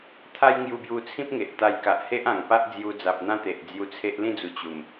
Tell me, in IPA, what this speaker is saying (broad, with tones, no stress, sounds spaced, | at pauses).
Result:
t̪ʰ a˦ j ŋ j u˧ b j u˧ t͡sʰ ĩ˦ p̚ ŋ e˨ ʔ t̪ a˧ j k a˨ ʔ h e˦ ʔ ã˨˩ ŋ p a˦ ʔ d͡z j u˧ d͡z a˨ p̚ n̪ ã˦ t̪ e˨ ʔ d͡z j u˧ t͡sʰ e˦ ʔ l ĩ˥˧ d͡z u˨˩ t͡ɕ u˨˩ m